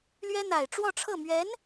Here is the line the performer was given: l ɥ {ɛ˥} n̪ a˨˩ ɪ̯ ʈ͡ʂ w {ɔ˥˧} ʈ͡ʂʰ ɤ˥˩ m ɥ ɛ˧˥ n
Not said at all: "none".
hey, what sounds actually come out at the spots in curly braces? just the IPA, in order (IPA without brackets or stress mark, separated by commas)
ɛ˥, ɔ˥˧